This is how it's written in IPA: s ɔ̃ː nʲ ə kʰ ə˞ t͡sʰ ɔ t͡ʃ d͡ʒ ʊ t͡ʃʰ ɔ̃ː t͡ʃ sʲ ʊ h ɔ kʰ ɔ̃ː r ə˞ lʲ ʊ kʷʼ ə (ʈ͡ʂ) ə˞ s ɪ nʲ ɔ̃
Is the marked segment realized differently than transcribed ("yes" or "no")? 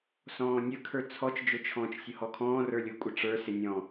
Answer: no